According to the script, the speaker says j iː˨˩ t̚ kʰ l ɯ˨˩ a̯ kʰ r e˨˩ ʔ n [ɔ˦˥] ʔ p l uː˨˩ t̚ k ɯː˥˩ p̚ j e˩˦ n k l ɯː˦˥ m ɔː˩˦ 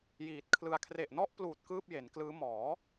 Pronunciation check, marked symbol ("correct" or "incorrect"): correct